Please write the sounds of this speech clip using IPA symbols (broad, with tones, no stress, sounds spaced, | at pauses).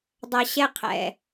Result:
dˤ a˧ ɕ ɛ˦ qʰ ɛ̰˧